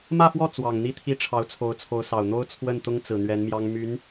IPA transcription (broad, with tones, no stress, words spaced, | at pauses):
mä˥˧fwɔ˥˩ t͡swɑ˨˩ŋn̪i˥˧t̪ʰi˥˩ ʈ͡ʂʰɑ˧˥ʊ̯t͡sʰo˧˥ʊ̯t͡sʰo˧˥ʊ̯sɑ˨˩ʊ̯ n̪o˥ʊ̯ t͡sʰwə˥˩nt̪ʊ˥ŋt͡sɹ̩˨˩ n̪ɥɛ˧˥nmjɑ˥ŋ my˧˥n